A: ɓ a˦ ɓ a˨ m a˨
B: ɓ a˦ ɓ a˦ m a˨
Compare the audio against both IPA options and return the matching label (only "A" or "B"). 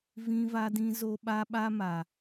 B